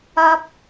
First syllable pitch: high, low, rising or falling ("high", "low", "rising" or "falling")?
high